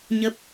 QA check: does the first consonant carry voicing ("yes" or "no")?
yes